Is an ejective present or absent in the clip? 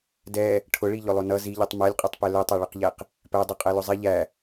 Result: present